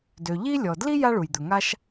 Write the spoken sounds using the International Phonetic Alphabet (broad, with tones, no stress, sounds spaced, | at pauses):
d ø˩ ʎ i˥ lʲ ɔ˩ d l i˥ j a˥ ɭ u˩ j d̪ ɵ˩ ŋ a˥ ʃ